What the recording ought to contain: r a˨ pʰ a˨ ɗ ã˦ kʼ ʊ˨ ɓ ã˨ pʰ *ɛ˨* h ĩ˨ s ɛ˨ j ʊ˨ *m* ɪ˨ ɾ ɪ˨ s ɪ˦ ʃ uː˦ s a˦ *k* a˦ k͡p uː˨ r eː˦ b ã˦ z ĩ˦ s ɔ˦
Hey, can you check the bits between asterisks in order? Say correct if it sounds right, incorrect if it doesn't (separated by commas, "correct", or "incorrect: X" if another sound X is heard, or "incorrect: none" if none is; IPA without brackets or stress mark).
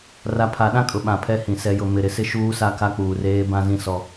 incorrect: ɛ˦, correct, correct